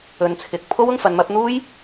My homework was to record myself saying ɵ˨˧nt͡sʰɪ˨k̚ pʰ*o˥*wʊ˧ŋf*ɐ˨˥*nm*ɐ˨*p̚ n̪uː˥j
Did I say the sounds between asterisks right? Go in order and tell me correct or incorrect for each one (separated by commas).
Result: correct, incorrect, incorrect